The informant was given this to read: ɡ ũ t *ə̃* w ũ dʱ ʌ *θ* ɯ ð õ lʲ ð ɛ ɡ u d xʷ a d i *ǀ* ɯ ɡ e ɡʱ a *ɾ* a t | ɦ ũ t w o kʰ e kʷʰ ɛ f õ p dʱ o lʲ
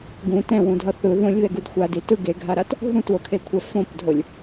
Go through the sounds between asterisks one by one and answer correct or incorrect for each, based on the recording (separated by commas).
incorrect, correct, incorrect, correct